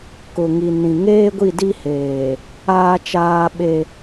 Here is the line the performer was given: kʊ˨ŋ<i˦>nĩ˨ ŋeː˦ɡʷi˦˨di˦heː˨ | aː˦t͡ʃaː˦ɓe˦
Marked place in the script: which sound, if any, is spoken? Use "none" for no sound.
i˨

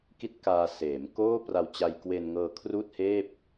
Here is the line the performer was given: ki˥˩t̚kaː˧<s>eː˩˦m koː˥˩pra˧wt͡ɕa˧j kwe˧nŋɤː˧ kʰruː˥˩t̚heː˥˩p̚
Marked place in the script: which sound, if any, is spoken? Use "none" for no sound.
s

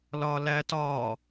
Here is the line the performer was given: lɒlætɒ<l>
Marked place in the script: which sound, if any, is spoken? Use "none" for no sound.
none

